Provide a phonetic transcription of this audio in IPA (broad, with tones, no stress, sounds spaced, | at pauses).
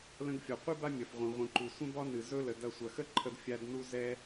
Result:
l ə̃˧ ɡ fʲ ɒ˩ qʷ ɨ˥ b a˥ mʲ ɐ˩ f ʁʷ ẽ˩ ʁʷ ĩ˩ ǃ u˩ sʷ ə̃˥ b ɒ˥ n ɨ˩ z ɵ˥ l ə˩ d ɐ˧ sʷ ɐ˩ x ə˥ ǃʰ ə˧ d fʲ a˧ d n u˧ z ɛ˧